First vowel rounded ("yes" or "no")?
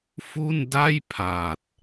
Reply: yes